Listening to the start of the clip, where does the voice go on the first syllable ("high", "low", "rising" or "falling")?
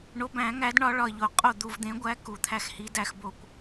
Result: rising